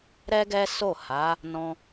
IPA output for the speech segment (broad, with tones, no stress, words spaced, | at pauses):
ɾɛ˦ɡɛ˦so˦˨ ha˨˦ | nɔ̃˧